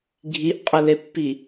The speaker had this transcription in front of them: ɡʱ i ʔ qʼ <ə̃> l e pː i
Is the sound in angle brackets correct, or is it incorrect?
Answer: incorrect